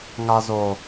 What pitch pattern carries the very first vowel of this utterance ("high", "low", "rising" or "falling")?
low